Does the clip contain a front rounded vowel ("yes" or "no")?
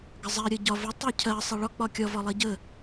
no